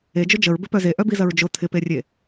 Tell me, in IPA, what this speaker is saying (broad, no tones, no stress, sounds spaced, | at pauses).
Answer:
e d͡ʒ ʊ d͡ʒ ə ɹ b ɪ p œ z e ʔ œ b i z ɐ ɹ d͡ʒ ʊ t̪ʰ ɪ p e rʲ e